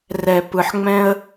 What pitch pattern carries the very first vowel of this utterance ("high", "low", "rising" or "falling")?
low